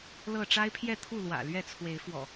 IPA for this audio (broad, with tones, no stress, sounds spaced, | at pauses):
l ɤ˥˨ ʈ͡ʂ a˦ ɪ̯ pʰ j ɛ˥˨ t̪ʰ u˥˨ l w ä̰˨˩ l ɥ ɛ˥˨ t͡sʰ w e˨˦ ɪ̯ f w ɔ̰˨˩